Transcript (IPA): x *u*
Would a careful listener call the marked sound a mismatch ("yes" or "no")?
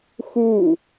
no